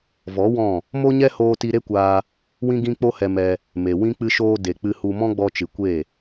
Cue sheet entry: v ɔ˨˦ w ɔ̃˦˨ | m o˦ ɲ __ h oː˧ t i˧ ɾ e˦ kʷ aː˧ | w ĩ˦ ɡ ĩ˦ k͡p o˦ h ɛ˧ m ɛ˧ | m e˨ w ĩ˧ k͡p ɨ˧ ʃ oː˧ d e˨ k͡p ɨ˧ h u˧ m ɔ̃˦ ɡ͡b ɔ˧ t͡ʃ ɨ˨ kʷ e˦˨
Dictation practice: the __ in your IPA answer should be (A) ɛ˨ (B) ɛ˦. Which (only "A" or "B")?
B